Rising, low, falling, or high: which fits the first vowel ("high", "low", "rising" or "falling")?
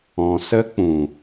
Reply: low